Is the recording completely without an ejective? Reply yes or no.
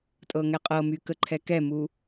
no